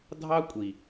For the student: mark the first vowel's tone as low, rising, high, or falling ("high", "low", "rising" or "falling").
high